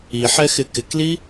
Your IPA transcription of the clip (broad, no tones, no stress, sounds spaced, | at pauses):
i ħ ɛ x ɪ k ɪ k l i